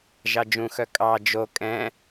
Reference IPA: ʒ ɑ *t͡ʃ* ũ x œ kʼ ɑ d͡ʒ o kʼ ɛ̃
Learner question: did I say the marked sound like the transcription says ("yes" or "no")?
no